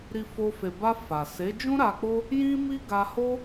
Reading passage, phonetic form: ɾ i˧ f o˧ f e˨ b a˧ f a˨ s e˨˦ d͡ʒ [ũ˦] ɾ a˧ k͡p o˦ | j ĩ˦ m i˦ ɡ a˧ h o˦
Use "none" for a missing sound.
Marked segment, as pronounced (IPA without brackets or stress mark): ũ˦